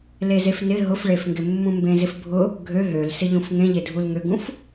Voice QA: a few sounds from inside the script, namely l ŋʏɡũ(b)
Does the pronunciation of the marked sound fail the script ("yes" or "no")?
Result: yes